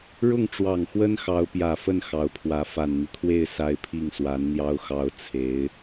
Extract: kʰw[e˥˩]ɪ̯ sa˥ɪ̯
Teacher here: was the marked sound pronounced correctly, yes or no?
yes